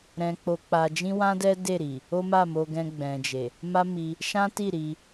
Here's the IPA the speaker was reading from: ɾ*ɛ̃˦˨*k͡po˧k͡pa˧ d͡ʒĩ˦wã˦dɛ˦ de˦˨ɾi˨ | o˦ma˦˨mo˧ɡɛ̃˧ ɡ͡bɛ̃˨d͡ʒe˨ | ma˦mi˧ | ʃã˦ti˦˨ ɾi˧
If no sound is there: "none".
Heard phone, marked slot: ɛ̃˧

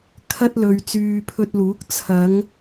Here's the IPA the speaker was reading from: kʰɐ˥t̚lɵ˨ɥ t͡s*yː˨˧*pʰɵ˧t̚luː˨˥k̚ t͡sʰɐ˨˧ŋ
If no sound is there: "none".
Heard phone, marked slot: yː˨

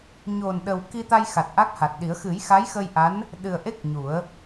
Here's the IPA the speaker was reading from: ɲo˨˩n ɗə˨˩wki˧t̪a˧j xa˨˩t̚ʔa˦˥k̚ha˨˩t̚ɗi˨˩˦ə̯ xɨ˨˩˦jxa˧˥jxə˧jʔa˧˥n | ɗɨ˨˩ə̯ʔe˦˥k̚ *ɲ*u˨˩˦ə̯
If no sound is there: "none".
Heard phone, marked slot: ɲ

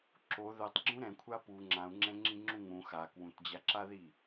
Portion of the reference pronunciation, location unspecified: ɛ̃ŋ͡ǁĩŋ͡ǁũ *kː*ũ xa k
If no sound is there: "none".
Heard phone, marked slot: ŋ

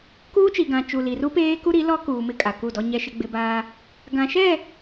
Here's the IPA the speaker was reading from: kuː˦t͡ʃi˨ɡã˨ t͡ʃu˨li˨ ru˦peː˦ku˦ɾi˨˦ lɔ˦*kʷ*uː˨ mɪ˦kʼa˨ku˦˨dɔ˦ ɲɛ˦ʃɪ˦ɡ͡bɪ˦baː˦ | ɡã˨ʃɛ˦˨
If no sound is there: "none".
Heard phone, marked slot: k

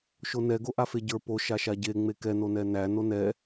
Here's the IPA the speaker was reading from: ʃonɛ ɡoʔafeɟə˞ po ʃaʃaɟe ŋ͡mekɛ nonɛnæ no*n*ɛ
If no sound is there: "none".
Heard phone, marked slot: n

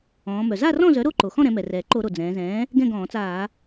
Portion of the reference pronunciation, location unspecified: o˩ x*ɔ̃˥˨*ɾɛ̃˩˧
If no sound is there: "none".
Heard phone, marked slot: ɔ̃˥˨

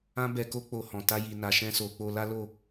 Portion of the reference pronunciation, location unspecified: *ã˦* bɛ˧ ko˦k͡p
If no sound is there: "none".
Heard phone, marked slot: ã˦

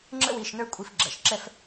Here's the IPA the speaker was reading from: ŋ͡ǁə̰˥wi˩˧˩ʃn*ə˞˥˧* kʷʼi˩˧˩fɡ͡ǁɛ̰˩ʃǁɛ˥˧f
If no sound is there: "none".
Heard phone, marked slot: ə˞˥˧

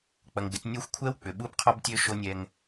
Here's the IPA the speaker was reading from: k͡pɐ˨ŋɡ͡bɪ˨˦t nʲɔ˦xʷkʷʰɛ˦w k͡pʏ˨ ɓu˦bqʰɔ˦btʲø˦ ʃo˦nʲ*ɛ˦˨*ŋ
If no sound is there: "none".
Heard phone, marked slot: ɛ˦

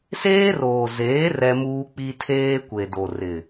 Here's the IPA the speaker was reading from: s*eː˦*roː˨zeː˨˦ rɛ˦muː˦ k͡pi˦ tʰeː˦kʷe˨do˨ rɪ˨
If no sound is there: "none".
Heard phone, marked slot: eː˦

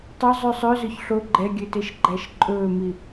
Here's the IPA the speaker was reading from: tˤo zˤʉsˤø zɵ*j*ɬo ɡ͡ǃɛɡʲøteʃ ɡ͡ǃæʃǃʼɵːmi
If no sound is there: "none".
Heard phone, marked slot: ç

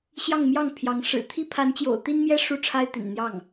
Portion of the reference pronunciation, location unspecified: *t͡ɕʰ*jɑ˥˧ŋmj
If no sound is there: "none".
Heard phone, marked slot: ɕ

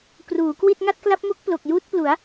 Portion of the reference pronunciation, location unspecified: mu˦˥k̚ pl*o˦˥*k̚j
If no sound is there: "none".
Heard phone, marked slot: o˨˩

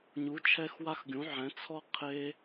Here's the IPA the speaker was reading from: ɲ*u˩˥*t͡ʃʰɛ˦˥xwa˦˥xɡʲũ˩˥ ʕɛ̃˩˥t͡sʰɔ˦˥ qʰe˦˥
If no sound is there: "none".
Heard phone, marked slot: u˩˥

